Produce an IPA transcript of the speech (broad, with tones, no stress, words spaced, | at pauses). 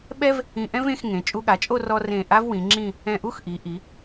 ɓɛ˥v | ĩ˧ʔɛ̃˥vẽ˧x ŋẽ˩˧ t͡ʃʼu˧ɠa˩˧t͡ʃʼo˥˧ rɔ˧ rẽ˧˩ ʔa˥vwĩ˩˧ŋ͡ǁĩ˥˧ | ɛ̃˧˩ʔu˥xʔi˩˧ ʔi˩˧